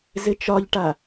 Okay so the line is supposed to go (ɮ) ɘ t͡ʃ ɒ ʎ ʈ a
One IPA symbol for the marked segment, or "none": z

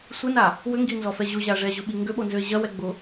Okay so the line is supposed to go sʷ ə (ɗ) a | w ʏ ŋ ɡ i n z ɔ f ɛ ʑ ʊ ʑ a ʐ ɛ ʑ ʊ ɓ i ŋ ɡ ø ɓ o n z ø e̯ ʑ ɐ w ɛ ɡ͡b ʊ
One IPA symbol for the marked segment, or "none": n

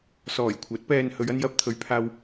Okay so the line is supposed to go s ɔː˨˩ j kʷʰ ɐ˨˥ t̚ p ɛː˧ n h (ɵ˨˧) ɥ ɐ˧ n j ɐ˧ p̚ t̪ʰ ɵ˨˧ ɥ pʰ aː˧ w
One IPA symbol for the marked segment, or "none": ɵ˨˧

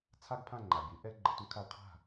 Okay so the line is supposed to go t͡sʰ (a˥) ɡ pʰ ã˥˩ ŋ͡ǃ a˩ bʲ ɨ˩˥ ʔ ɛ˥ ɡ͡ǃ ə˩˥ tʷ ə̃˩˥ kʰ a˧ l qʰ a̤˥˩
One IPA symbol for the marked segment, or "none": a˥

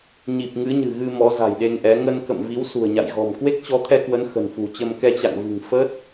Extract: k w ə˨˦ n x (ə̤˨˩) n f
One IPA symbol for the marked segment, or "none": ə̤˨˩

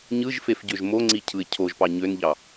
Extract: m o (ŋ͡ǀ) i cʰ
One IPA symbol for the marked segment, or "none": ŋ͡ǀ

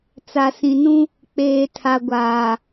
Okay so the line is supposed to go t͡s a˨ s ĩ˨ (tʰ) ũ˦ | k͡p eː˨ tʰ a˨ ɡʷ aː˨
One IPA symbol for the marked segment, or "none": n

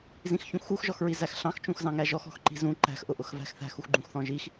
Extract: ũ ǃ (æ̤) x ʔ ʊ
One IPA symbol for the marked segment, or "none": æ̤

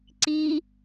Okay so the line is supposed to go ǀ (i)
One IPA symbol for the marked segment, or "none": i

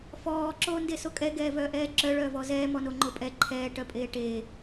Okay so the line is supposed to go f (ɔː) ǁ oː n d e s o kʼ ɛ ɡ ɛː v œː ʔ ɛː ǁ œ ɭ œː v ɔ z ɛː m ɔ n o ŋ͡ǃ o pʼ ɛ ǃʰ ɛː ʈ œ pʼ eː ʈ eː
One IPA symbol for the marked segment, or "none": ɔː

